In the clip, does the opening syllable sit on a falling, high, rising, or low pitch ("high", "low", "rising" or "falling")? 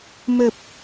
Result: low